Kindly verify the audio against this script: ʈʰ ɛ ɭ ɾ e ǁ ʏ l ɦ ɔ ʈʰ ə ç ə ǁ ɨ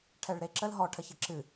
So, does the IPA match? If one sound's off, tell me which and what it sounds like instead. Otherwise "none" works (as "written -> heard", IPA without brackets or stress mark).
ʏ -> ə